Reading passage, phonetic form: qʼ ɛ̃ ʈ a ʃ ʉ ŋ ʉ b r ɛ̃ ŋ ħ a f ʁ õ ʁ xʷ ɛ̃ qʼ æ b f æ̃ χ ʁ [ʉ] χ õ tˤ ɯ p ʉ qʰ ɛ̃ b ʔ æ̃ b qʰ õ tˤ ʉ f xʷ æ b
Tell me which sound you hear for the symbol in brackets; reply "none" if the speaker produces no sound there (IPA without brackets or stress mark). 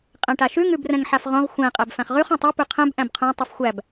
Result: ʉ